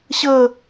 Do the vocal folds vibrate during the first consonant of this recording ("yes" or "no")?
no